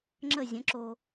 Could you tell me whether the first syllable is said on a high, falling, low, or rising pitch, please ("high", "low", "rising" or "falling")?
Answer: falling